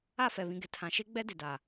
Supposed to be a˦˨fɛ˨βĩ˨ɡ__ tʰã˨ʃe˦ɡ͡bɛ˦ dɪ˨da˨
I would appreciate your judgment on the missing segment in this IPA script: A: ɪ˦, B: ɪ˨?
B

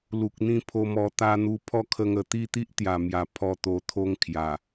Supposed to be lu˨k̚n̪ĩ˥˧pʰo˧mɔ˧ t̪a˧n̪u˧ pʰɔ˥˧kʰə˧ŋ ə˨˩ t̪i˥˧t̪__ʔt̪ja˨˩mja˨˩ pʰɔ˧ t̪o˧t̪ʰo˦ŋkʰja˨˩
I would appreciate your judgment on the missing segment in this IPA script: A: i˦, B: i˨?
A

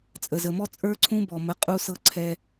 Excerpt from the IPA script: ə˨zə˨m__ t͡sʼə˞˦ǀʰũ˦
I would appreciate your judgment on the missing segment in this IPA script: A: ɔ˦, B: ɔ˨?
A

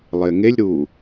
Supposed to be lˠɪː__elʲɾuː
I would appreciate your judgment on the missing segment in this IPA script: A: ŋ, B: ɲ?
A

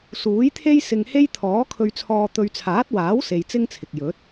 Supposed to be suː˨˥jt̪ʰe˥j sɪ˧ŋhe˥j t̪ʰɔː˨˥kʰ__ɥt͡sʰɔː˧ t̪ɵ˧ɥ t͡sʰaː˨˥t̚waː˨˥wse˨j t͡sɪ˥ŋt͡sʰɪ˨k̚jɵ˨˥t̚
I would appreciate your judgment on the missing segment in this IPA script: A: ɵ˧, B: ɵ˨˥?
A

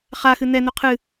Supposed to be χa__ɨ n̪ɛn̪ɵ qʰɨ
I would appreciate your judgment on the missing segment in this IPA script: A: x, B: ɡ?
A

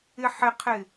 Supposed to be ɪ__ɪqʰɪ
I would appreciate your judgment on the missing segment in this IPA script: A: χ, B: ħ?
B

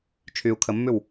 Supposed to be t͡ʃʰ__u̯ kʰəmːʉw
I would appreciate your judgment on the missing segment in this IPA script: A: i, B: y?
B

